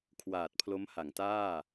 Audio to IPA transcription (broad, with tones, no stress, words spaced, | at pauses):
kʰwaː˨˩t̚pʰlo˦˥mha˩˦ŋtaː˥˩